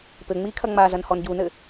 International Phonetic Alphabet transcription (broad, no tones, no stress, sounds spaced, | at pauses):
p ɘ ŋ͡m i kʰ ɐ ŋ͡m a z ɐ n h ɔ n ɟ u n ɘ